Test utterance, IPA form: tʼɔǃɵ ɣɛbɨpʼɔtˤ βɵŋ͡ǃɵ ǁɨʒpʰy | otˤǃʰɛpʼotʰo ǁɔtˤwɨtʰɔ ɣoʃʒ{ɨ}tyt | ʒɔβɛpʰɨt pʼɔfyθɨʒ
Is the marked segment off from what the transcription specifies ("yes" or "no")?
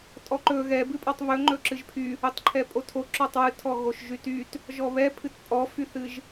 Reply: yes